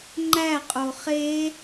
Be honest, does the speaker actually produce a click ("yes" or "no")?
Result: yes